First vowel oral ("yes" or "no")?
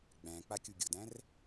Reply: no